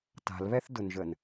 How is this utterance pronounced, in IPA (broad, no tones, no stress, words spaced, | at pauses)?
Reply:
ta̤lβɛθdʊnʒən